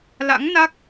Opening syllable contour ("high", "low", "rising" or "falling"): rising